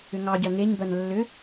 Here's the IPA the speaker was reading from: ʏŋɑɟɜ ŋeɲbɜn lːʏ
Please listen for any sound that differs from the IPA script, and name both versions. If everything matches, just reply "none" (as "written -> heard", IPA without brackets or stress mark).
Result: none